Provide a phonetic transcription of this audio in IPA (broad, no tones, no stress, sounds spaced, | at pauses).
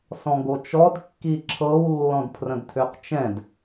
s ɔ̃ ɡ o t͡ʃ ɔ d kː i ǁʰ ɤ w lː ɔ̃ d pʰ r ə̃ d tʰ ø q t͡ʃ ɛ̃ d